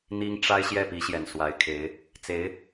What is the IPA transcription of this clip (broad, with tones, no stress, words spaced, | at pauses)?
n̪i˥ŋ ʈ͡ʂa˥ɪ̯ ɕjɛ˥˩pi˧˥ɕjɛ˨˩n swa˧˥ɪ̯kʰe˧˥ɪ̯ | t͡se˧˥ɪ̯